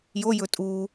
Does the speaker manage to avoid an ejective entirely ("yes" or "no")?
no